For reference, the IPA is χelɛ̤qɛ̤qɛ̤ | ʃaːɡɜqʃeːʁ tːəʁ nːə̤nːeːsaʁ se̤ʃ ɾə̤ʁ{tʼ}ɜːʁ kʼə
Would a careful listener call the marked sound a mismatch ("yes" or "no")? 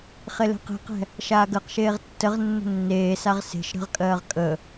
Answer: yes